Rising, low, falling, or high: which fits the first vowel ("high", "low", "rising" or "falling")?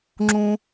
high